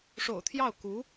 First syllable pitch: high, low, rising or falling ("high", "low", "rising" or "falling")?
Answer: low